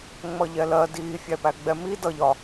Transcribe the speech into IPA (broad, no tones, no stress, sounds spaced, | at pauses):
ŋ͡m ʌ ʎ ɛ l ɜ d iː fʲ æ p æ ɡ͡b ɛ m i d ʌ ʎ ɒ